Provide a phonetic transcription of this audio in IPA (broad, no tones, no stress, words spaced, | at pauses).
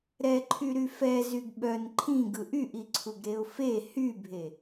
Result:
ɾɛǃʰy ɾyfɛ zyɡɓœn ǃʰĩɡɯ ʔyʔiǀʰuɡɾeʊ̯ fe hybʱe